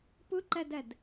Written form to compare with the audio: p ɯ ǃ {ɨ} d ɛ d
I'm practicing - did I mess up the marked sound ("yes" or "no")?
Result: yes